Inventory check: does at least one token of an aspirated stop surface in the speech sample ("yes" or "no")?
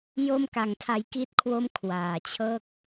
yes